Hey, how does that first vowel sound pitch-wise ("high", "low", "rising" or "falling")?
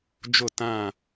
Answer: falling